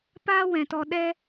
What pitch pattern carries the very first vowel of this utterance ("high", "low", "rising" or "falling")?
high